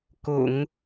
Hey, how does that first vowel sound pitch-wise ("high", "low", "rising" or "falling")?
low